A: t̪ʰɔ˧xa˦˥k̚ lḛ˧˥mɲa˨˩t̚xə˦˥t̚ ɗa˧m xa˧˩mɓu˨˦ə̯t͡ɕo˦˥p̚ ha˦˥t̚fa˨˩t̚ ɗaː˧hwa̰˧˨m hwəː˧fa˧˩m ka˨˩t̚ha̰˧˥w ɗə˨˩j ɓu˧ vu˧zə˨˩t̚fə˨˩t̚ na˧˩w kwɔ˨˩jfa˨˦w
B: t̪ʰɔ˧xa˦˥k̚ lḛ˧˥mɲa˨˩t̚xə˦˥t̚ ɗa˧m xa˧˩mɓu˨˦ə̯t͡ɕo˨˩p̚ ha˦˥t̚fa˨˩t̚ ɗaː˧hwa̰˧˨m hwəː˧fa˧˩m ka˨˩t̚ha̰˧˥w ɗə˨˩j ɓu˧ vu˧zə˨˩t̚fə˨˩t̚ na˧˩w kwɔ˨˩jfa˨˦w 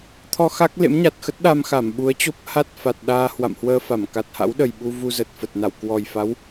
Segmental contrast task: A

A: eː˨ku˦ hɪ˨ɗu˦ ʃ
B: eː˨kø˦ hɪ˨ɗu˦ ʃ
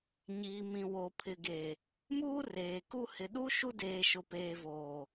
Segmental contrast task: A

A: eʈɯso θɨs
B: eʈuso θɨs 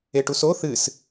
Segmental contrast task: B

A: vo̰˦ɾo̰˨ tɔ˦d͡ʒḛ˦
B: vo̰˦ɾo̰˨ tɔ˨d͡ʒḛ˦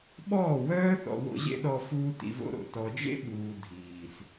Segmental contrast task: B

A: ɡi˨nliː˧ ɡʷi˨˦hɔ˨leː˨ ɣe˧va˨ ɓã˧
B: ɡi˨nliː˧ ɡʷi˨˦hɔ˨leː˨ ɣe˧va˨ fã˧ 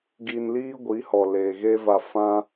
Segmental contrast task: B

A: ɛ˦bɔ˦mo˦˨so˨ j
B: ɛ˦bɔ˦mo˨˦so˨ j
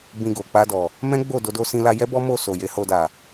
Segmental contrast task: A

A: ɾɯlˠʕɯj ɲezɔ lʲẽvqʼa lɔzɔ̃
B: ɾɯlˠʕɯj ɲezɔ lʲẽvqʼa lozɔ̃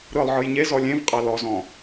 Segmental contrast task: A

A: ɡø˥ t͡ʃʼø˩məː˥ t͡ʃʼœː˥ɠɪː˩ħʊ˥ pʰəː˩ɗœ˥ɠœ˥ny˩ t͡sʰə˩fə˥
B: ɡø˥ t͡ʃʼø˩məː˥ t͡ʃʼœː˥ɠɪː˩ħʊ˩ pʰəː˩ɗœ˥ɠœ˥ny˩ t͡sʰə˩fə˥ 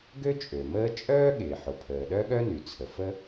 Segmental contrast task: B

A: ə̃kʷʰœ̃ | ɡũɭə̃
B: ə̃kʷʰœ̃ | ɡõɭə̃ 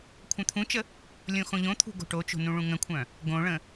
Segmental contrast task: B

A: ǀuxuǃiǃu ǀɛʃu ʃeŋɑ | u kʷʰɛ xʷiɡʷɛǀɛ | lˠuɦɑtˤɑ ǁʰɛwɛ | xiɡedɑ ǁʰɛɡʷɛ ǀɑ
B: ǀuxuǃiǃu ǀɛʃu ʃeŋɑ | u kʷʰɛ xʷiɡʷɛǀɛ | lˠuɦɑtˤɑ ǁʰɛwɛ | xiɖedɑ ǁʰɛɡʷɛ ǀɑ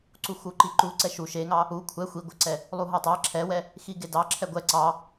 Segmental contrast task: A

